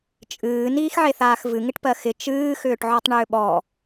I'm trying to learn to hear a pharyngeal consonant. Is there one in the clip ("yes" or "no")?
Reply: yes